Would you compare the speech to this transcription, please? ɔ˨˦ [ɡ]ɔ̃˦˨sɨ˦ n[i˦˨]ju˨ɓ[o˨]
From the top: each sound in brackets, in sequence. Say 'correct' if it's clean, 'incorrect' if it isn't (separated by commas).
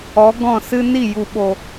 correct, correct, correct